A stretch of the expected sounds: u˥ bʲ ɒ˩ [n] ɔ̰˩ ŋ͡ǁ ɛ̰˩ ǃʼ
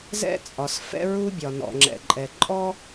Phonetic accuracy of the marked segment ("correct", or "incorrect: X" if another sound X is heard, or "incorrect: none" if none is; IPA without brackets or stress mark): correct